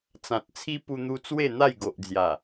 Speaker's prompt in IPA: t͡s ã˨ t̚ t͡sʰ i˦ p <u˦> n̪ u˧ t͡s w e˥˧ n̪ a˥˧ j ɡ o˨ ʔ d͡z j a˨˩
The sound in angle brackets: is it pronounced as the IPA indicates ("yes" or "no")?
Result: no